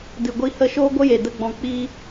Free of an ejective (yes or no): yes